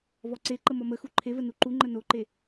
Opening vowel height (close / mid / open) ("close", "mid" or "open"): mid